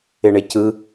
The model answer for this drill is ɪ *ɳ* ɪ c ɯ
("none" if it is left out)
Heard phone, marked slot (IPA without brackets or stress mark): ɳ